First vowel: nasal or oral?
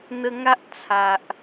oral